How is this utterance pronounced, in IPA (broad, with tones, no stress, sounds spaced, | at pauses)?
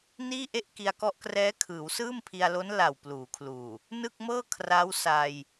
n iː˥˩ ʔ e˥˩ ʔ k i˧ a̯ k ɔ˦˥ ʔ k r ɛː˦˥ kʰ ɯː˩˦ w s ɯː˥˩ m pʰ i˧ a̯ l o˦˥ n l a˨˩ w p l uː˩˦ kʰ l uː˨˩ | n ɯ˥˩ k̚ m ɤː˥˩ kʰ r a˦˥ w s aː˧ j